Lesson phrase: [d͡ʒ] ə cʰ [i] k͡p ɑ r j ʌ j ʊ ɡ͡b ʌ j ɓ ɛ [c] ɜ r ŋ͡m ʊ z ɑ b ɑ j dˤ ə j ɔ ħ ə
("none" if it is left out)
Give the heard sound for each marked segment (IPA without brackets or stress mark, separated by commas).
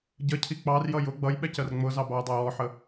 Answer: ɟ, i, c